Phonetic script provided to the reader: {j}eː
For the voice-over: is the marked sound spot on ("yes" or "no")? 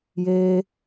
yes